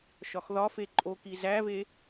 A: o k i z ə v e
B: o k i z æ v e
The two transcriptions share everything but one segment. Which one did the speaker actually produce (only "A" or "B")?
B